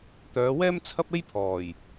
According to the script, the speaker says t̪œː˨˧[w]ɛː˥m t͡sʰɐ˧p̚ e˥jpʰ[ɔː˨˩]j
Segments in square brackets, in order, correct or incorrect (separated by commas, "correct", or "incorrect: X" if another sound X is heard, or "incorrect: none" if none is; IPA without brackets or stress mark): correct, correct